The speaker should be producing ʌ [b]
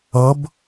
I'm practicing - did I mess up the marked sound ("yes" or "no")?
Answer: no